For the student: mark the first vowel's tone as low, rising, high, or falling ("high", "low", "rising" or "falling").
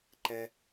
low